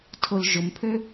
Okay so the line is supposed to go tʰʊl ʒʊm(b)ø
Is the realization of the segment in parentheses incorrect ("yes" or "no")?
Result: yes